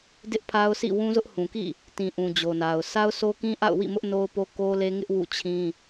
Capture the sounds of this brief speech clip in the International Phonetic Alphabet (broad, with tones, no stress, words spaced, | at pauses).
dɪ˦ʔpʰa˦ʊ̯sʰḭ˦˨ wũ˦zʊ˦ʔhũ˨kḭ˦˨ | tĩ˨ʔũ˨ d͡ʑo˨na˨ʊ̯ sa˦ʊ̯sʰo˦kĩ˦ ʔa̰˦˨ʊ̯wḭ˦˨mʊ˦ʔ no˦ʊ̯po˦ ko˦le˦ŋɪ˦ʔ wṵ˦˨t͡ɕʰĩ˦